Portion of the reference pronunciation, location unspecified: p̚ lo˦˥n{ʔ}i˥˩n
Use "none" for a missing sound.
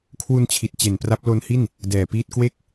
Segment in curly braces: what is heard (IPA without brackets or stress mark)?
h